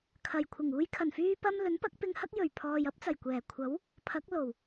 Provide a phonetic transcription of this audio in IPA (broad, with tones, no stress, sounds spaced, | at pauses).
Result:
kʰ ɐ˨˩ j kʷʰ ɪ˨˩ ŋ uː˧ j kʰ ɐ˨˩ n f yː˧ p ɐ˧ m l ɵ˨˥ n p ɐ˨˥ k̚ p ɪ˧ ŋ h ɐ˥ k̚ j ɵ˨˩ ɥ pʰ ɔː˨ j ɐ˨˥ p̚ t͡s ɐ˨˩ j kʷ ɛː˨˩ kʷʰ ɐ˨˥ w | pʰ ɐ˨˥ k̚ l o˨˩ w